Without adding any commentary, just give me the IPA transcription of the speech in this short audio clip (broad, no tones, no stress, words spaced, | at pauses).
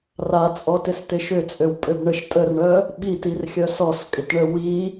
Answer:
rat͡sʼɔtɪstɪ ʃʏt͡sʼøwpʼøb ɳəʃ tʼərɳœ | ɓitirxʲœs ɔskʼɪtɳə wi